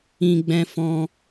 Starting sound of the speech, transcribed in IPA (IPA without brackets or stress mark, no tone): ĩ